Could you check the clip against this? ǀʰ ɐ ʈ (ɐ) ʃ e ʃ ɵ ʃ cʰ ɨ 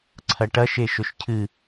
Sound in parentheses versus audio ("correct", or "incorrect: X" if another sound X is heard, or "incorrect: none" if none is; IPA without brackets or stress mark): correct